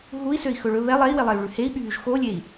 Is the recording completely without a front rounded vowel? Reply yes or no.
no